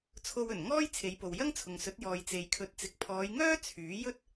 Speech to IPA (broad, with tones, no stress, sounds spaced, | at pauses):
t͡sʰ o˧ w ɵ˨˩ n ŋ ɔː˥ j t͡sʰ e˨˧ j p o˨ w j ɐ˥ ŋ t͡sʰ ʊ˨ ŋ s ɵ˨˥ t̚ j ɔː˨ j t͡s e˨ j kʰ ɵ˨˥ t̚ t͡s ɪ˨ k̚ pʰ ɔː˨˧ j ŋ œː˥ t͡sʰ yː˨˥ j ɵ˥ t̚